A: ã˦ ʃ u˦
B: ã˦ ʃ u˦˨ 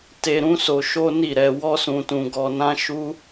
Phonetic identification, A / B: A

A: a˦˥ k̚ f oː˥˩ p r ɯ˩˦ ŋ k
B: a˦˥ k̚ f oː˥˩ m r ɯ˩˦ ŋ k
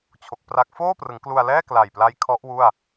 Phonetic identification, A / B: A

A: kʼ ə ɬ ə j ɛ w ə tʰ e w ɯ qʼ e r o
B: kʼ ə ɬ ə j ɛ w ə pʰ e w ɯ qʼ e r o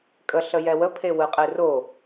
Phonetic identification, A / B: B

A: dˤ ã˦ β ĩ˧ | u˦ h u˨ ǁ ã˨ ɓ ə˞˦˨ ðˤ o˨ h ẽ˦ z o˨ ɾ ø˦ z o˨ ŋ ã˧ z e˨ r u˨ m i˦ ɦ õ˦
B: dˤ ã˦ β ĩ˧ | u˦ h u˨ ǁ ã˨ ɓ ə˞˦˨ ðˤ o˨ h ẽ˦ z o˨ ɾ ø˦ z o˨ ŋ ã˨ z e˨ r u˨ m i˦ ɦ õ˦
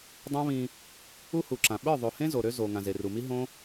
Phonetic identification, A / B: B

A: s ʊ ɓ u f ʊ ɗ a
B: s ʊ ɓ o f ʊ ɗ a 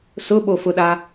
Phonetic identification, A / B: B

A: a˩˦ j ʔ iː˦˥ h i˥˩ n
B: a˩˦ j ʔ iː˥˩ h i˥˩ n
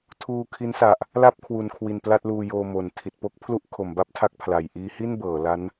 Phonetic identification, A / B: A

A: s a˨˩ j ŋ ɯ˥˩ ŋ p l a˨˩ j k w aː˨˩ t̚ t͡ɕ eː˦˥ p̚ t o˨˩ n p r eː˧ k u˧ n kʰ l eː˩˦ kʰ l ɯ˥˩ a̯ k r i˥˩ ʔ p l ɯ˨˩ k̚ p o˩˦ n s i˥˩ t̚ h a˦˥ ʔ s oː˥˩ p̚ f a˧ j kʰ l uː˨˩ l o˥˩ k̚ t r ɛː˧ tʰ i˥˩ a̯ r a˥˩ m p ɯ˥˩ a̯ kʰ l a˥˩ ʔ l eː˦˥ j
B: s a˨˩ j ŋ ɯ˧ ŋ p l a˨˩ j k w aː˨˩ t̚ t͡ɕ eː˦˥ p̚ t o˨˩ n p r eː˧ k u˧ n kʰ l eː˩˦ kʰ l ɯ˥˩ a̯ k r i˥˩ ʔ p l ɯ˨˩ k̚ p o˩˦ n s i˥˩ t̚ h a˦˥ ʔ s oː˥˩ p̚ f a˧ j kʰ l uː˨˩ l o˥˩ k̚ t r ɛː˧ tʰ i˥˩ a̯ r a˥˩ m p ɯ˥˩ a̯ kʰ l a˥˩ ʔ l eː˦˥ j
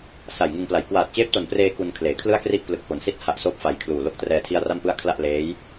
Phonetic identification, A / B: B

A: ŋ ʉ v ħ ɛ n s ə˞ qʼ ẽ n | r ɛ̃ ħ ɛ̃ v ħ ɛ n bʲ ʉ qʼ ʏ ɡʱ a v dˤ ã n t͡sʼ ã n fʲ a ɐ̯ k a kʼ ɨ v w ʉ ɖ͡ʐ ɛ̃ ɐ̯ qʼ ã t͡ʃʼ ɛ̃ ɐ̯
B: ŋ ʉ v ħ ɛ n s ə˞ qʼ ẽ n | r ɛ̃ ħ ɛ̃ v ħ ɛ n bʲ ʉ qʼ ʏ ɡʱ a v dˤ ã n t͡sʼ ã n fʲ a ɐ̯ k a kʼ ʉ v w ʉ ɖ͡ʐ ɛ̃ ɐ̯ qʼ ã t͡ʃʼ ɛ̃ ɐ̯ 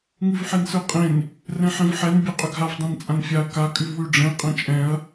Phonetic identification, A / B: B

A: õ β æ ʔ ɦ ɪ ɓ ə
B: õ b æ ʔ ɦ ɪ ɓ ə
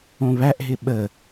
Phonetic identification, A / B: A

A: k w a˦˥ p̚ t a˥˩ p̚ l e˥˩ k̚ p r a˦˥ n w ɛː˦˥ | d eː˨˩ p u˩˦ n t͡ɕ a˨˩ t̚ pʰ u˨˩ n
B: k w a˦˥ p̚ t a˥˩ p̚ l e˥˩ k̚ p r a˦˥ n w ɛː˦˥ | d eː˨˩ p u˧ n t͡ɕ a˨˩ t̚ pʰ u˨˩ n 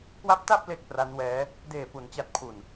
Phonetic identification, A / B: A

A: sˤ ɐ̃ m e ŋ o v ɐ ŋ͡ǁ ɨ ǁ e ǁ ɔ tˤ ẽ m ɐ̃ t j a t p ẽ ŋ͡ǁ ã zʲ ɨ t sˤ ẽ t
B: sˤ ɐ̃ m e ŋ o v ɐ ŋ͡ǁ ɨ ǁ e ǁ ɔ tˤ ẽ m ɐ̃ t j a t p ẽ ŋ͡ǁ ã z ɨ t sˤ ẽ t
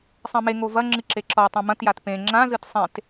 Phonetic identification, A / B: B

